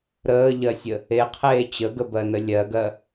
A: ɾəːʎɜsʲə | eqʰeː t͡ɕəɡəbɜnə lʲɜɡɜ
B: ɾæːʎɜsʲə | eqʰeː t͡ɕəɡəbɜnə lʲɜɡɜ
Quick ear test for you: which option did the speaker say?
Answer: A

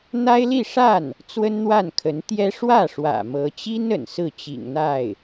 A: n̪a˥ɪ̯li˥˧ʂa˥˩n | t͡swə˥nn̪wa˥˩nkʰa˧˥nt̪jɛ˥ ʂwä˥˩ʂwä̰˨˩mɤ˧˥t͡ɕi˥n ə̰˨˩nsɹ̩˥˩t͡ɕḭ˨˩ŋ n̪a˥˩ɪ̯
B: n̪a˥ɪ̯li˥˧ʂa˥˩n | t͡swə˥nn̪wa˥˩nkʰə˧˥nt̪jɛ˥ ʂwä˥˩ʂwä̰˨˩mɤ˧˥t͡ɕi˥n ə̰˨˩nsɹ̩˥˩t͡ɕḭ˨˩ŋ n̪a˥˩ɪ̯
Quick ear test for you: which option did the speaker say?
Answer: B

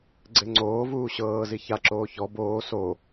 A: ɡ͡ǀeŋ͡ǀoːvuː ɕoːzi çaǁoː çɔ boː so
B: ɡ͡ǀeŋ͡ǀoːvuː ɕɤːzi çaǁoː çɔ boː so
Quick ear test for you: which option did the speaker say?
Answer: B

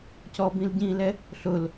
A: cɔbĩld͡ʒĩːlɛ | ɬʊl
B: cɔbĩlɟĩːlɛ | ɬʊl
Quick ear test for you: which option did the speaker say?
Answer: B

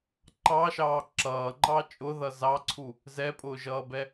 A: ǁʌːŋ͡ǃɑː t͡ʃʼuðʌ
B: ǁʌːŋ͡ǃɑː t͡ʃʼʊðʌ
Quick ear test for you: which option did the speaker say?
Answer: B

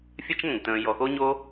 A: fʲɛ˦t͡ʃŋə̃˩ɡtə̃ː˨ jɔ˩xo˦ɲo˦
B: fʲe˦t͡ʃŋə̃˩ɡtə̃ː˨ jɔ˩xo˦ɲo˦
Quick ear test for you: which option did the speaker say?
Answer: A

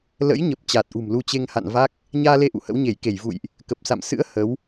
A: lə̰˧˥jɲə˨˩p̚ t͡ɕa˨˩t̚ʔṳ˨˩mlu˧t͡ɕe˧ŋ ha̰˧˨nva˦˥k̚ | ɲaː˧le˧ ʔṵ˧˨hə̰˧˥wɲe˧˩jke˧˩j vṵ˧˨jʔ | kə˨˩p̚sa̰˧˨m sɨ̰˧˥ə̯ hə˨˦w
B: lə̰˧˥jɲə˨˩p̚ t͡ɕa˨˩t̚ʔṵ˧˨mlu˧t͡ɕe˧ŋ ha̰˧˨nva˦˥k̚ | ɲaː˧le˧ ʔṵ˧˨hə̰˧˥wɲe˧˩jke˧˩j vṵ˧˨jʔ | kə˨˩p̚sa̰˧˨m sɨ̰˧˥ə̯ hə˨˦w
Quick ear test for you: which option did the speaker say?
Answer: A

